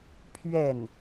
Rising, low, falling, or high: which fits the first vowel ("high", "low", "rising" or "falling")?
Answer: falling